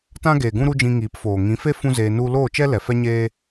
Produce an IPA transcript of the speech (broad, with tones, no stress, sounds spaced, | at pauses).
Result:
t ã˦ ɡ eː˨ ɡ ũ˦ ɾ u˦ d͡ʒ ĩ˧ ŋ iː˨˦ p f oː˨ ŋ ĩ˨˦ f e˦ f ũ˦ z eː˧ n u˧ l oː˦˨ t͡ʃ ɛ˦ l ɛ˨ f ɛ˦ ɲ eː˦